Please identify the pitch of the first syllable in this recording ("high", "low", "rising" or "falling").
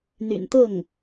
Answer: low